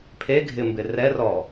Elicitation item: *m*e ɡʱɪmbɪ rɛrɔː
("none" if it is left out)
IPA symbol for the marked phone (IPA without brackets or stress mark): pʰ